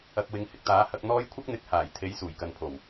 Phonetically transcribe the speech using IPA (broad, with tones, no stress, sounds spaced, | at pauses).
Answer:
ɐ˨ k̚ w ɪ˨˧ ŋ h ɪ˨ k̚ t̪ aː˨˥ h ɐ˧ k̚ n̪ ɔː˥ j kʷʰ ɐ˥ k̚ n̪ ɪ˨˥ k̚ h aː˨˩ j t̪ʰ e˨˥ j s uː˨˩ j k ɐ˧ n pʰ o˨˩ w